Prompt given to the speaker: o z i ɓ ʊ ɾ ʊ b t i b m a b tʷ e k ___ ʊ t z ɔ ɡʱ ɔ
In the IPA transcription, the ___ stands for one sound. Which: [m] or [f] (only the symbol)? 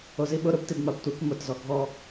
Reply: m